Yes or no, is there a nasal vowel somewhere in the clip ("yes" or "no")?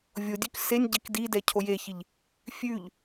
no